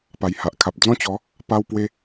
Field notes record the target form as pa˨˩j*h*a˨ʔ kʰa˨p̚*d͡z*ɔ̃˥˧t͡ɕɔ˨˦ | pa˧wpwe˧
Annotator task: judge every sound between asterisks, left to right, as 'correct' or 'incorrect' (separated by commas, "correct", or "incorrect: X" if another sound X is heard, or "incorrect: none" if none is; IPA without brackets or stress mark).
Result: correct, correct